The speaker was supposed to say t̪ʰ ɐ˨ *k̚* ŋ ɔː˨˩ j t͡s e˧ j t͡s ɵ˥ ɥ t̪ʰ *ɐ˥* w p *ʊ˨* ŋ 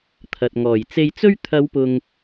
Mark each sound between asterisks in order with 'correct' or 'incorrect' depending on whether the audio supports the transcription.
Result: incorrect: t̚, incorrect: ɐ˨˧, correct

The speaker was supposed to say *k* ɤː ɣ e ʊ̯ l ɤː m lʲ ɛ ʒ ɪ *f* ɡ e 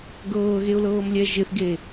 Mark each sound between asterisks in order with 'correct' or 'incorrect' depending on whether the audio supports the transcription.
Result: incorrect: ɡ, incorrect: θ

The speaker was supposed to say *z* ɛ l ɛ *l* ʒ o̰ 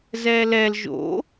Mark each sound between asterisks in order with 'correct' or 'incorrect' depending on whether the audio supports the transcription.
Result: correct, correct

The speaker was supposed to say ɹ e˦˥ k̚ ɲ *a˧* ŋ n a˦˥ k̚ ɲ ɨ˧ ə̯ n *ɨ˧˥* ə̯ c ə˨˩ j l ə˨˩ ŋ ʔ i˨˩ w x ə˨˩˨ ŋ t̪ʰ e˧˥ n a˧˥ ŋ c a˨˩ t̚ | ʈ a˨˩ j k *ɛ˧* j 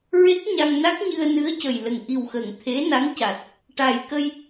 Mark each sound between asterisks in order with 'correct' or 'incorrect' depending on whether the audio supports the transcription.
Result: correct, correct, incorrect: ə˧

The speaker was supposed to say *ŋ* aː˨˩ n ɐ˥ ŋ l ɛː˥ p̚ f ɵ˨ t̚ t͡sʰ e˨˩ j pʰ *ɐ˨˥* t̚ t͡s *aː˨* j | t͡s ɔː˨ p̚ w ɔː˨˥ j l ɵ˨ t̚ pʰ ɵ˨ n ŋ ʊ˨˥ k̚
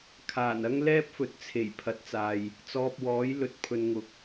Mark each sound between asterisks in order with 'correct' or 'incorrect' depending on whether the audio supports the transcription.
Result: incorrect: kʰ, correct, correct

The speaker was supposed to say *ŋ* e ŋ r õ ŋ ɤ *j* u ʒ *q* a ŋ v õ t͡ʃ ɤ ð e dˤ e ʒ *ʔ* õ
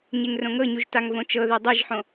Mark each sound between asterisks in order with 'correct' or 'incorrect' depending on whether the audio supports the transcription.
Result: incorrect: ɲ, incorrect: ɲ, incorrect: t, incorrect: ħ

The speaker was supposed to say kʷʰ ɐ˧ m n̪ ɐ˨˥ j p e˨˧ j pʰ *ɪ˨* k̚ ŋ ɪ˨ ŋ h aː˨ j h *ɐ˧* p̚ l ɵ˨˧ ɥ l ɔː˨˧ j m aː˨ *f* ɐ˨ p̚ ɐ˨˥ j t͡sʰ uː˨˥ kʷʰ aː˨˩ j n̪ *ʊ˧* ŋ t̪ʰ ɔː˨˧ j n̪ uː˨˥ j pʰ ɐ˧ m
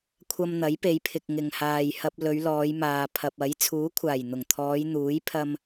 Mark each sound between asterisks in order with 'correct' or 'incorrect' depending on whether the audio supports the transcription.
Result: correct, correct, incorrect: pʰ, incorrect: ʊ˨˩

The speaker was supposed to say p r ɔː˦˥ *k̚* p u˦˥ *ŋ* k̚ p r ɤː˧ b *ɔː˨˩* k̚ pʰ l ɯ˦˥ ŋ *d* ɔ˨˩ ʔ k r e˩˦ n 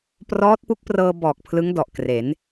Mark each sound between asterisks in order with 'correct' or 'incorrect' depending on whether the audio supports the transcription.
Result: incorrect: t̚, incorrect: none, correct, correct

